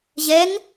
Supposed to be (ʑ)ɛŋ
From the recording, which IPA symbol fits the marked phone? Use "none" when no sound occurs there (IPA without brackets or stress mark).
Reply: ʑ